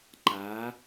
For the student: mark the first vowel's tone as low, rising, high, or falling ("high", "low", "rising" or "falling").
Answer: rising